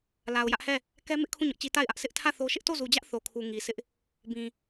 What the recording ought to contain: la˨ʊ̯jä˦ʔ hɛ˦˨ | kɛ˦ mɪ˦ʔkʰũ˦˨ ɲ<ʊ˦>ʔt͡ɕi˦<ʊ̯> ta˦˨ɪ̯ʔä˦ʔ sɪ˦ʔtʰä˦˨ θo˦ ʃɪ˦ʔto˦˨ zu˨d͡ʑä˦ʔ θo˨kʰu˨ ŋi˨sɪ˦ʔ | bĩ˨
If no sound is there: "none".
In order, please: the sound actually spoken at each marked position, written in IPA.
ʊ˦, none

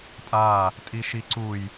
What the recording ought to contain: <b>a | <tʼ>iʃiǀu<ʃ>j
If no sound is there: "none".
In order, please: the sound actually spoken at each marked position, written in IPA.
pʼ, tʼ, none

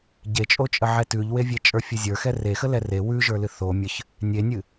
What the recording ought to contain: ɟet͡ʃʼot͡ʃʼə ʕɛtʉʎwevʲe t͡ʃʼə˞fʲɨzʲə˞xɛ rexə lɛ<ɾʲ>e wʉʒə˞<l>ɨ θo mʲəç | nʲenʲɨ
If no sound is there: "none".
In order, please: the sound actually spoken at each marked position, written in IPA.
r, l

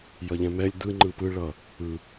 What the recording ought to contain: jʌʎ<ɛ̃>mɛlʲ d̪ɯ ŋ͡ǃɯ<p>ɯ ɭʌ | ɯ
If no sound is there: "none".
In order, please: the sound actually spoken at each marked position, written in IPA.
ɛ̃, p

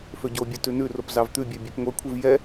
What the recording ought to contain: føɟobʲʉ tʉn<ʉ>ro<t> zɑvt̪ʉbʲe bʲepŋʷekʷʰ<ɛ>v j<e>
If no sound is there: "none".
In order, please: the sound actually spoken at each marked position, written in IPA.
ʉ, p, e, ɛ

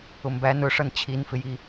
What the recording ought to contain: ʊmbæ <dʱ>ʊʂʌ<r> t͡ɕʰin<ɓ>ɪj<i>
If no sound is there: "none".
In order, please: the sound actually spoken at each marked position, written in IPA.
n, n, f, i

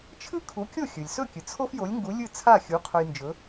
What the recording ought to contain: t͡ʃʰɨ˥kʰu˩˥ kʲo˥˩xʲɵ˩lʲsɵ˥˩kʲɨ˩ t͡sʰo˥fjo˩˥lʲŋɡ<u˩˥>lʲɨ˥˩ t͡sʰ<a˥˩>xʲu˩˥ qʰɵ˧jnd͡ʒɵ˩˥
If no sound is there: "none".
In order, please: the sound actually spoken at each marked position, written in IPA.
u˩˥, a˥˩

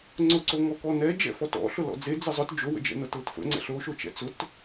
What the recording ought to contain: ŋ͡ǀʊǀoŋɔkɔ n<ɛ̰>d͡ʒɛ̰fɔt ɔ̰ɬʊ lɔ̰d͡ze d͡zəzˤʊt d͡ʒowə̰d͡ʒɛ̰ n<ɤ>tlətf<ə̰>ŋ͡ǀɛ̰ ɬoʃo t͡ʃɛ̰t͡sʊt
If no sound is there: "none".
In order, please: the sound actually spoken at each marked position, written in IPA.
ɛ, ɤ, ə̰

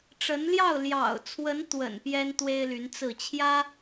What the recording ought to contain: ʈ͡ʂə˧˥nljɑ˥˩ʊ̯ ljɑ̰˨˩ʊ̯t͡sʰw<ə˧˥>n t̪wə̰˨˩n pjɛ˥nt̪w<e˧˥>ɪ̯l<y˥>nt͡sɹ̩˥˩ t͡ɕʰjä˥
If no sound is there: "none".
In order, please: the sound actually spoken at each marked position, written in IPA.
ə˧˥, e˥, y˧˥

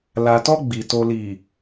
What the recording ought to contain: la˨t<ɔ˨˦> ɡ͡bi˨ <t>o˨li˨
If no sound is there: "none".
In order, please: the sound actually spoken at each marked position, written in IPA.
ɔ˧, t

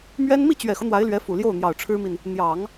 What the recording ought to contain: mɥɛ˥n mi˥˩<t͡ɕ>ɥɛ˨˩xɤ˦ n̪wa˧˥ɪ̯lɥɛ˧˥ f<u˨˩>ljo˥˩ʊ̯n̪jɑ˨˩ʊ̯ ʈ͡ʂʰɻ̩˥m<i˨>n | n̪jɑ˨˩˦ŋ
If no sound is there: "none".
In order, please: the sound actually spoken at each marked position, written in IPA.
t͡ɕ, u˨˩, i˨

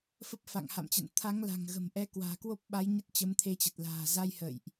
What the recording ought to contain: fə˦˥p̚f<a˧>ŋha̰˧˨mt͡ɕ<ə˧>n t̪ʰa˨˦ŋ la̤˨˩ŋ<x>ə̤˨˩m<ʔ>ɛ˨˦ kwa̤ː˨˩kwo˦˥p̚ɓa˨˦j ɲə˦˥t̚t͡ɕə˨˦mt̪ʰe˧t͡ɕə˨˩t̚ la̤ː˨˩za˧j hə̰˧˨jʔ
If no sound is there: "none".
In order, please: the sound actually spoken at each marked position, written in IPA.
a̰˧˨, ə̰˧˨, ɣ, ʔ

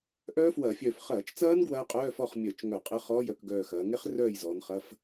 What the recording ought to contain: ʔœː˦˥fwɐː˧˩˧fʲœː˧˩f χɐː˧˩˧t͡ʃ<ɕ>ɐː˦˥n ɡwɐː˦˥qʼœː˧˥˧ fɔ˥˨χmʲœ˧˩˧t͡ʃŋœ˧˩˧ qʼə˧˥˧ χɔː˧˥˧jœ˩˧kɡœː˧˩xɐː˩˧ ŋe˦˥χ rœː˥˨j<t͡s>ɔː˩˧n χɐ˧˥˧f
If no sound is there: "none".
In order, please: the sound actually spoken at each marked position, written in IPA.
t͡s, z

